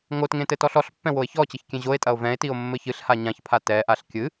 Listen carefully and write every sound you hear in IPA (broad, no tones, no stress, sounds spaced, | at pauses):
ŋ o t ŋ ẽ t ɘ t ɔ ɬ ɔ ɬ pː ɛ̃ w o e̯ ç ɔ t͡ɕ ɘ ç kʲ ẽ ʑ o e̯ tʼ ɐ o̯ v ɛ̃ e̯ t i o̯ mː ɘ ç ɨ ɬ h a ɲ ã ç pʰ a t ɛ ʔ a ɬ kʲ ɨ